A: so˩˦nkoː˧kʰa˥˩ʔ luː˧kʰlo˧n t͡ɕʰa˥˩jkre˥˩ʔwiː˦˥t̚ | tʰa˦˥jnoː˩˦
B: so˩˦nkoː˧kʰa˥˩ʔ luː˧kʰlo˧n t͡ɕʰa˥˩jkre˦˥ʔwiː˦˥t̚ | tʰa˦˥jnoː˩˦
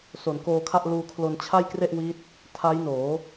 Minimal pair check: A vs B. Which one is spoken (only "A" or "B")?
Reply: A